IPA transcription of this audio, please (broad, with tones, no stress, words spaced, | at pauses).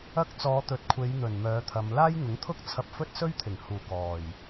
ɐ˥k̚ t͡sɔː˨˧t̪ɵ˨˥t̚kʷʰe˨˧j n̪ɵ˨˩nmœː˨˧t̪ʰɐ˨˧m laː˥jŋʊ˨˥ŋt̪ʰʊ˥k̚ t͡sʰɐ˧p̚fɵ˥t̚ sɵ˥ɥt̪ʰɪ˨˩ŋhuː˨˩ kɔː˨˩j